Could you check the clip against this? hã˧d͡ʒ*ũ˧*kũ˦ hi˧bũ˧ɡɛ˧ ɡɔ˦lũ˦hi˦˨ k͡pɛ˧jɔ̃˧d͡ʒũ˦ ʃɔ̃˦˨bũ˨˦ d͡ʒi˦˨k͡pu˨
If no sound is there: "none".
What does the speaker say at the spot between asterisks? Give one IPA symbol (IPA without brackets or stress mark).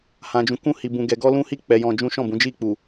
ũ˧